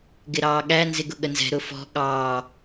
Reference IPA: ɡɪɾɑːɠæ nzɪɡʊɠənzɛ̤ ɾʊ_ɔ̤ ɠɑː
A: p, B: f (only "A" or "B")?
B